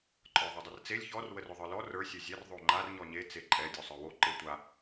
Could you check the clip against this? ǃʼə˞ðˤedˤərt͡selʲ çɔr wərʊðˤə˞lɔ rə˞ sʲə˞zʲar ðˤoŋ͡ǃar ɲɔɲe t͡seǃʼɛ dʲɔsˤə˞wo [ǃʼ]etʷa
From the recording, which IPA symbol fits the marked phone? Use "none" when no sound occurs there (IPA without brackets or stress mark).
ǃ